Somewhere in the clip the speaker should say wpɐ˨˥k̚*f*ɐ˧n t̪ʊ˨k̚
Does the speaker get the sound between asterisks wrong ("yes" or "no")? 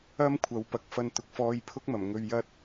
no